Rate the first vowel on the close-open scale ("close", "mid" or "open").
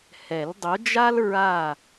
mid